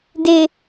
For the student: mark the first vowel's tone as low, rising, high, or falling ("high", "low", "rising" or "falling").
low